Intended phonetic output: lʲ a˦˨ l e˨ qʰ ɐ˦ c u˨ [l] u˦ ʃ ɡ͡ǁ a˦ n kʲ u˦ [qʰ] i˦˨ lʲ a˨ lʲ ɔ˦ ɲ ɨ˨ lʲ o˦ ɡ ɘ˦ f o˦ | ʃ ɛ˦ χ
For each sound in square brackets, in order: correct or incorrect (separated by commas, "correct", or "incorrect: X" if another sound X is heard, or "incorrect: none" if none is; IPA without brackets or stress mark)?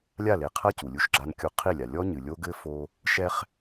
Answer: incorrect: lʲ, correct